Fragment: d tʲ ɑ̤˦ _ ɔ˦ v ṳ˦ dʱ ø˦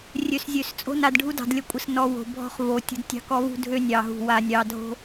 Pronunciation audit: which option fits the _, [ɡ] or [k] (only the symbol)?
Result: k